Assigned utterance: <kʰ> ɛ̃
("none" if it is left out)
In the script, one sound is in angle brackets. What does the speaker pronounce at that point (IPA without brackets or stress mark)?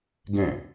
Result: ɡ